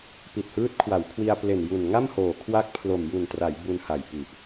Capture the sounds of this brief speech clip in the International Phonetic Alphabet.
p i˨˩ t̚ h ɯː˦˥ t̚ kʰ w a˩˦ w kʰ w i˧ a̯ p l e˨˩ n j u˨˩ n ŋ a˥˩ m h oː˨˩ kʰ w a˦˥ k̚ pʰ l o˨˩ m j u˨˩ n t r a˩˦ j b u˧ n h a˨˩ j p i˨˩ ʔ

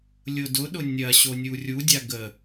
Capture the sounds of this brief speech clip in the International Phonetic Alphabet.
lʲ ʊ d ʊ ɗ ʊ nʲ ɐ ɕ o nʲ u rʲ u dʲ a ɡ ə

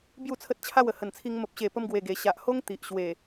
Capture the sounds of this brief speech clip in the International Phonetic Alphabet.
b j u˥˧ t͡sʰ ə˦ t̚ t͡ɕʰ a˥˧ w ə˨˩ h ə˨˩ n t͡sʰ i˧ ŋ m ə˨ p̚ ɕ e˨˩ p ə˧ m ɡ w e˨˩ ɡ e˨˩ ɕ a˨ ʔ h o˦ ŋ t̪ i˨ ʔ ɕ w e˨˩

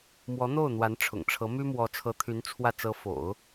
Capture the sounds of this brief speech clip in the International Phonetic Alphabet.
m w ɔ˧˥ n̪ o˥˩ ʊ̯ n̪ w a˧˥ n ʈ͡ʂʰ ʊ̰˨˩ ŋ ʈ͡ʂʰ ɤ˧˥ m y˥ m w ɔ˧˥ t͡sʰ ɤ˧˥ t̪ʰ y˧˥ n t͡sʰ w ä˥˩ t͡s ɤ˧˥ f o̰˨˩˦ ʊ̯

